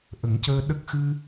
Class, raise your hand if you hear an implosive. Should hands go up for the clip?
yes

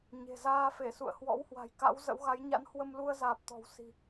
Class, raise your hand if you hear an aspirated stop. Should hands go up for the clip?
no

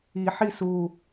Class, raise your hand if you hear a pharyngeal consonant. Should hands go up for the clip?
yes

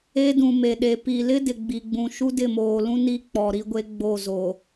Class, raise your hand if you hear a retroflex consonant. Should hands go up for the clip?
no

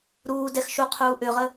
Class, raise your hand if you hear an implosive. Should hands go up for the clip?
no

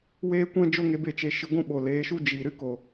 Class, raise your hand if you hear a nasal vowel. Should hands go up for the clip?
yes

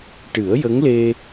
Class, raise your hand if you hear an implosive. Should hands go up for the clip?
no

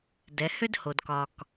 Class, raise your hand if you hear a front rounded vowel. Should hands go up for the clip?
yes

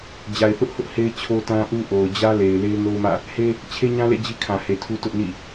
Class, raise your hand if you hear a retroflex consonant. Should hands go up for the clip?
no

